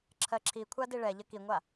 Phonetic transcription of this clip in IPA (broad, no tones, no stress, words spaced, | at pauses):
ǁʰɜǁʰikʷʰa diɭɛʎə kiŋʷa